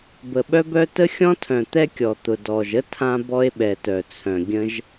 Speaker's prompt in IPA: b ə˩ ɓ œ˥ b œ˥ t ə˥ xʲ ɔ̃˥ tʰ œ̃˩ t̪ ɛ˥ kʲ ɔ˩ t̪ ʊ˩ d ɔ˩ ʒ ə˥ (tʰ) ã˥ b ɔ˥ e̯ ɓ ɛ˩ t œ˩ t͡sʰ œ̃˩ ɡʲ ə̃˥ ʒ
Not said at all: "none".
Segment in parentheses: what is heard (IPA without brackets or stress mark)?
tʰ